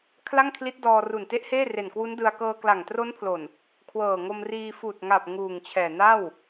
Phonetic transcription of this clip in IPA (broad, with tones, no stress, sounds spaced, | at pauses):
kʰ l a˥˩ ŋ kʰ l i˦˥ t̚ d ɔː˧ r u˨˩ n t e˦˥ ʔ h eː˥˩ r e˨˩ n k w u˦˥ n d ɯ˧ a̯ k ɤː˧ k l a˨˩ ŋ t r o˦˥ n pʰ l o˨˩ n | kʰ w ɤː˨˩ ŋ o˧ m r iː˧ f uː˨˩ t̚ ŋ a˨˩ p̚ ŋ uː˨˩ ŋ t͡ɕʰ ɛː˨˩ n a˥˩ w